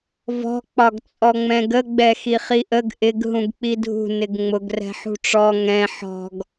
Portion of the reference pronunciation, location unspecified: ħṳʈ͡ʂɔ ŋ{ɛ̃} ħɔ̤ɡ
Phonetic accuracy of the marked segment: correct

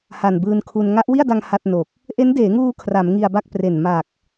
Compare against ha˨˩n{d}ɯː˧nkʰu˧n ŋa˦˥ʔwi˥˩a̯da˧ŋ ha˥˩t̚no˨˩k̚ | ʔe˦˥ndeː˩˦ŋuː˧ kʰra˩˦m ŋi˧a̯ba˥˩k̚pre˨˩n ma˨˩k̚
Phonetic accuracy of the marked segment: incorrect: b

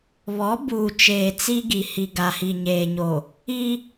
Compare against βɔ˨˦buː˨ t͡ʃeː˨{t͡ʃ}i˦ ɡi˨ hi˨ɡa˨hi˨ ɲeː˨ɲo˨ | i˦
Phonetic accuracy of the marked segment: incorrect: t͡s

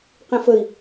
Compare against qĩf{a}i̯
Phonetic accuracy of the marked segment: incorrect: ə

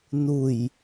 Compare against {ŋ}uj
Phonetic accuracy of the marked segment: incorrect: n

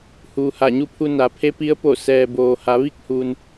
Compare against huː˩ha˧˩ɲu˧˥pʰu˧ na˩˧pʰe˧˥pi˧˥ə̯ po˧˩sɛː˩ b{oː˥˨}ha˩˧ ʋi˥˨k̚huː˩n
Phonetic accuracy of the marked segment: incorrect: oː˩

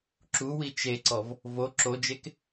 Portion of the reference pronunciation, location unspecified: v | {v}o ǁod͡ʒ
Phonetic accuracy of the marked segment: correct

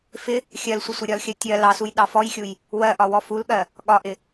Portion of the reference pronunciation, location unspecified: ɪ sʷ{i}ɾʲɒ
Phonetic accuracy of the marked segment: incorrect: ɪ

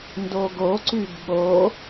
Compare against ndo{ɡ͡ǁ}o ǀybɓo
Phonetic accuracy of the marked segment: incorrect: ɡ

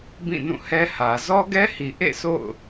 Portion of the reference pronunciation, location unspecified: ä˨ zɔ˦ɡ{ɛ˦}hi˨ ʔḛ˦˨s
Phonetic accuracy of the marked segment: correct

